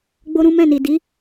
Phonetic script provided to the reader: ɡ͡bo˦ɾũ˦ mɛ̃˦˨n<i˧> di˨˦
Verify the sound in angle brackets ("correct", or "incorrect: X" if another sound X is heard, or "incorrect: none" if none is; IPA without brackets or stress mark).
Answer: incorrect: i˨